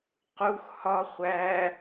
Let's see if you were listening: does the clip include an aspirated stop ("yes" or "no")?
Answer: no